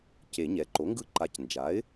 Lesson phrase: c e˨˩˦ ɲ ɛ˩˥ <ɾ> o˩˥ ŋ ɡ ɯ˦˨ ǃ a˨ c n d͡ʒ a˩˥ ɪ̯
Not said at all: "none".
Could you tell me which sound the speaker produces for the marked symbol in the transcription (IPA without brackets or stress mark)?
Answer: ǃ